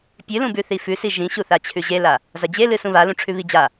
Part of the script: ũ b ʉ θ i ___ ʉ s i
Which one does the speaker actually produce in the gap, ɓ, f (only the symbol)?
f